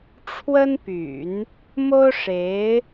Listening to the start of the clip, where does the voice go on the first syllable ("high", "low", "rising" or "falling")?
high